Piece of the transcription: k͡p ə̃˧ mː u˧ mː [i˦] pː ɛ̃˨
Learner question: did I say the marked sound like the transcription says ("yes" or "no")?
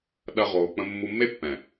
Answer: no